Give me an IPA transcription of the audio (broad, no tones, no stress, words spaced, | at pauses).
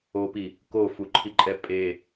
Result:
opi | kofuǃʰiǃʼɛ pʼe